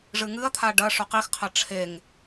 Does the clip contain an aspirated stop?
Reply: yes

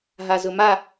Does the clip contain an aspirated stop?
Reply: no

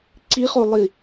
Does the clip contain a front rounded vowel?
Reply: no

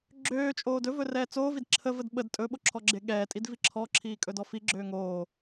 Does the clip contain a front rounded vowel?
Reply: yes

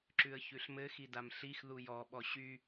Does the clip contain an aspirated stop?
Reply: no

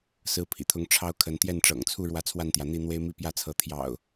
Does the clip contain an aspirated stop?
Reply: yes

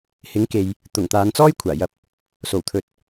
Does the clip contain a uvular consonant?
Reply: no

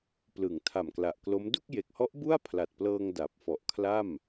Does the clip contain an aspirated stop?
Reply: yes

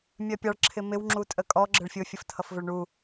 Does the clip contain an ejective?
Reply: yes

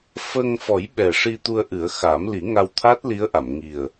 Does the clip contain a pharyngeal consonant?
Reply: no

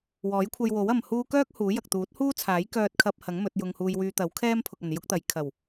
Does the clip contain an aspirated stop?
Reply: yes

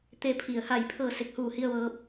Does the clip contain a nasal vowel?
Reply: no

